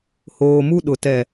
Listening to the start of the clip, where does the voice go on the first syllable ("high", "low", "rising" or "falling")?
low